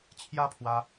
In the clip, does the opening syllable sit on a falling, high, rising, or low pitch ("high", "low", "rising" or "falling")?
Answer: high